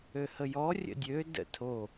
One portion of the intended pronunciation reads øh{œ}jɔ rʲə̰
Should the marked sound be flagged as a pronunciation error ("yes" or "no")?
yes